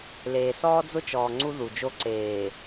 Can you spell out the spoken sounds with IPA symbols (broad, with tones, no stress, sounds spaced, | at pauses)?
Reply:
l eː˨ s ɔː˦ d͡z ʊ˦ t͡ʃ ɔː˨ ŋ͡ǀ u˦ ð u˨ d͡ʒ o˦ ǀ eː˨